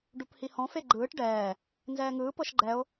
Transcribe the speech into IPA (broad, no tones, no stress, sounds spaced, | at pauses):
ɖ u p h i h ɔ̃ f e ɡ͡ǃ ɯː ʈ ɖ ɛː | n z ɛː ŋ ɯː p ɤ ʃ ɡ͡ǃ ɛ o̯